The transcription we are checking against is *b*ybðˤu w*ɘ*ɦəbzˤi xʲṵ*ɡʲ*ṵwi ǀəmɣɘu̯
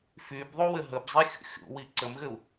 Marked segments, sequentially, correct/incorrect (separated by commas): incorrect, correct, incorrect